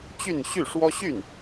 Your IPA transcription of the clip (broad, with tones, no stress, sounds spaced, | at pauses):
t͡ɕ y˥˧ n ɕ y˥˩ ʂ w ɔ˥ ɕ y˥˩ n